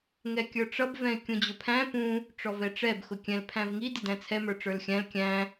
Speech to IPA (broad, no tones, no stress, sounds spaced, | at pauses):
ŋ ɛ kʲ ə˞ ʈ͡ʂ ʌ b v ɛ̃ ɪ̯ kʲ ũ d͡ʑ ʊ pʰ æ̃ p ũ | ʈ͡ʂ ɔ v ɛ ʈ͡ʂ ɛ b x ʊ kʲ ɛ̃ l pʰ æ̃ v ŋ i d ɪ d æ̃ t͡sʰ ɛ m ə˞ ʈ͡ʂ ə˞ l xʲ æ̃ l kʲ æ̃